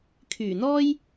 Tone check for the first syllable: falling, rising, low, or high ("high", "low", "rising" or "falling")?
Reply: low